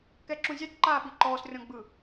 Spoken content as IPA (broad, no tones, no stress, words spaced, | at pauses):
kɛǁũzʲat ǃaːɓiǃɔːs rʲɔ̃ɡ͡bɯ